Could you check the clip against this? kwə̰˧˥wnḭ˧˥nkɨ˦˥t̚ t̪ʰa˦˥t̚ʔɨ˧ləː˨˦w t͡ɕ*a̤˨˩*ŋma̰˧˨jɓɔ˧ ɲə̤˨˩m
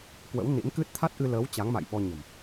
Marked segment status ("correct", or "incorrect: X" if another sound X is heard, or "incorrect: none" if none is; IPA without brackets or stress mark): incorrect: a˨˦